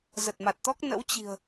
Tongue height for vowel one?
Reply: mid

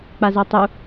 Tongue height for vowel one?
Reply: low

